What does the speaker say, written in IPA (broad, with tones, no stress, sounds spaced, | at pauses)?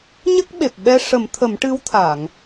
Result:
ɲ ə˦˥ k̚ ɓ e˨˩ p̚ ɓ ɛ˧ ʂ ə˨˩˦ m t̪ʰ ə˨˩˦ m ʈ ɨ˧˥ w t̪ʰ a˨˩˨ ŋ